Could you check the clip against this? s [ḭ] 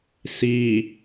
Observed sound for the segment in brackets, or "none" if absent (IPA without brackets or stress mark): i